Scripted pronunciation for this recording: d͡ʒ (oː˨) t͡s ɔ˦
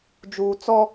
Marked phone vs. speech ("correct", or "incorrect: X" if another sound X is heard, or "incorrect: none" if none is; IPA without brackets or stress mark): incorrect: uː˨